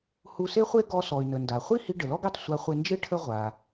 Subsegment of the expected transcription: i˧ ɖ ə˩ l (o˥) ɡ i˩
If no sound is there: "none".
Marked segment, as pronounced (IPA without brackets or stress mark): ɔ˥